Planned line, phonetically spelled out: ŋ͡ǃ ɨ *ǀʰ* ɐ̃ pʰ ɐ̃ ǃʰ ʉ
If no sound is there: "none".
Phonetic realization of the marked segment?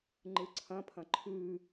ǀʰ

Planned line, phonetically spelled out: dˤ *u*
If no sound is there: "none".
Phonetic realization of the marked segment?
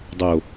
o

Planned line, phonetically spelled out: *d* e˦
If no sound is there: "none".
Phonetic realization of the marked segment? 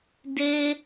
d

